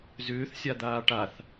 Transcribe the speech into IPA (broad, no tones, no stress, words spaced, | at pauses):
zʏːθsʲad̪aː ʈaθ